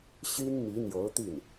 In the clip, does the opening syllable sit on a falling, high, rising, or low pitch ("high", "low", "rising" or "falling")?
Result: high